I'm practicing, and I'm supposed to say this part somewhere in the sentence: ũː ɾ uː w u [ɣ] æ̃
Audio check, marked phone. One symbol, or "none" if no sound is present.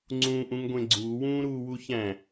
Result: ç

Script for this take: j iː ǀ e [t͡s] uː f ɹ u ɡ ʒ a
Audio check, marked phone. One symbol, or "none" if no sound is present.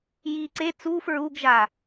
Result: t͡s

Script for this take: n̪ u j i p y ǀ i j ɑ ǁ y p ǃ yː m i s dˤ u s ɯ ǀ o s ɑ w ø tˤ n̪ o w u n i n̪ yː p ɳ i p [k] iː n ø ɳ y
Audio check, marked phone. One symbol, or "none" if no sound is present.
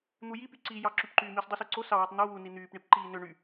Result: ǃ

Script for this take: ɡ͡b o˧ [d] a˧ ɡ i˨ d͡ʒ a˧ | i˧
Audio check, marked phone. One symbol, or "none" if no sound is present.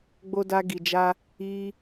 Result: d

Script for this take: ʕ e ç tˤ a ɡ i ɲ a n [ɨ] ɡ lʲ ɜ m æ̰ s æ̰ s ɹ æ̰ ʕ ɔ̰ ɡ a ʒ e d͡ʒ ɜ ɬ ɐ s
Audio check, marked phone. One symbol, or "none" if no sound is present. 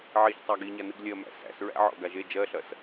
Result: ɨ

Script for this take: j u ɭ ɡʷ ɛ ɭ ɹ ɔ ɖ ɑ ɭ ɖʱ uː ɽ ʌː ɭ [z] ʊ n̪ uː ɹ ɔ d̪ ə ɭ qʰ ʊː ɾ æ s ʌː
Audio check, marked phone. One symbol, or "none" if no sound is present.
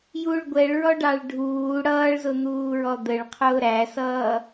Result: z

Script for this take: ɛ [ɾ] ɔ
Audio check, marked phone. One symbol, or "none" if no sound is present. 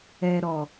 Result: ɾ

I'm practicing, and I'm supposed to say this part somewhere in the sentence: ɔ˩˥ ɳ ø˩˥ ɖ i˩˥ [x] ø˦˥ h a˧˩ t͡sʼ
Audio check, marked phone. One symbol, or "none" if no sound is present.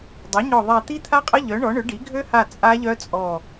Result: ɡʱ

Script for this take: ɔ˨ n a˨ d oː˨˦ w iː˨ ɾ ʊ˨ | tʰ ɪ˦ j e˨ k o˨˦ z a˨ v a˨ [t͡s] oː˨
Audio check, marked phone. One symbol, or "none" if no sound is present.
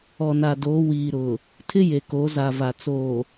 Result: t͡s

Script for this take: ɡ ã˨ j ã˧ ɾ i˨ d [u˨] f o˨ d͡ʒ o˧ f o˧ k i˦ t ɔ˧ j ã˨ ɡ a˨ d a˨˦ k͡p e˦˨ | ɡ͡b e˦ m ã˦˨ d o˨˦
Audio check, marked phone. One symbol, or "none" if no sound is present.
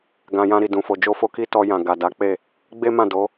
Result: ũ˨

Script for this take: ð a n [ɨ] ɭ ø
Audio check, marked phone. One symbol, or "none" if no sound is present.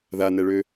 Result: ɛ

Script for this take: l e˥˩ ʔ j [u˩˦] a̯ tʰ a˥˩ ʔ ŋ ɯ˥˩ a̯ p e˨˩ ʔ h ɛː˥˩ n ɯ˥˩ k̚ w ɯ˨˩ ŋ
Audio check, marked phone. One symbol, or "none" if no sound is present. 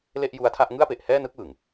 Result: u˧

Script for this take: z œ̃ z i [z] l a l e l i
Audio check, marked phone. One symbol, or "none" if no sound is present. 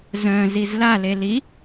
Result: z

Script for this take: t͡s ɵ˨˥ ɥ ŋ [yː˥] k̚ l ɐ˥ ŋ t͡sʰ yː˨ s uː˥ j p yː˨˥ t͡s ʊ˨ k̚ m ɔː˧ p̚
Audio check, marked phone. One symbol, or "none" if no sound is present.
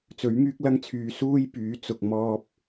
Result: yː˥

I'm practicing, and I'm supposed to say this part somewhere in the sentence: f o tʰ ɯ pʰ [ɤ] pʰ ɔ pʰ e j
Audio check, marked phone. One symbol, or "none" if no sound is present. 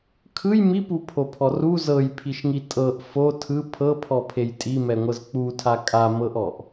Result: ɤ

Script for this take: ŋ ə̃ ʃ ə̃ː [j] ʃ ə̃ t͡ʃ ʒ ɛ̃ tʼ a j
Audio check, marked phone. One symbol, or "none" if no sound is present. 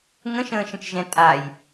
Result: none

